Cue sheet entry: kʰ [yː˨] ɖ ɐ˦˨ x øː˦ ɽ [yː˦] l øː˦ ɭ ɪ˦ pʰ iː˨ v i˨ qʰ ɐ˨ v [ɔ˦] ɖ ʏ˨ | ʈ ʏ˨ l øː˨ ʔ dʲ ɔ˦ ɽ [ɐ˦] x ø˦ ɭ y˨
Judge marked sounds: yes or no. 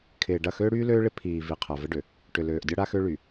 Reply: no, yes, no, no

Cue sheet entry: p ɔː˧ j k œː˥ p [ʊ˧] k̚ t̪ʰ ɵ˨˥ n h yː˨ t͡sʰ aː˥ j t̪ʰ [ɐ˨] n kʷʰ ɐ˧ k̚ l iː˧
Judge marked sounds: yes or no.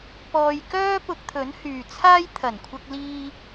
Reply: yes, no

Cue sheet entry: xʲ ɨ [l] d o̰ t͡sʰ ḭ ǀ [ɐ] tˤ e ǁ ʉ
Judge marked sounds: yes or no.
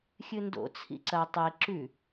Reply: no, yes

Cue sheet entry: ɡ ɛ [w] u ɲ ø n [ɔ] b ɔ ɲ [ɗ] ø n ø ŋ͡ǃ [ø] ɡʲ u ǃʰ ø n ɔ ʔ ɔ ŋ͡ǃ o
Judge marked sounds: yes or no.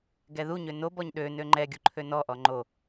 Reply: no, no, yes, no

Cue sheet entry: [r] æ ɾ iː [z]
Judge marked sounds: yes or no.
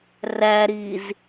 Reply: yes, yes

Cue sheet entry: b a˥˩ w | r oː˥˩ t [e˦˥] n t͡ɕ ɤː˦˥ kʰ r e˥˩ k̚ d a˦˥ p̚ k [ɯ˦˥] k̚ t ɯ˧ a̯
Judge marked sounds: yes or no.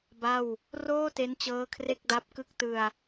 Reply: yes, yes

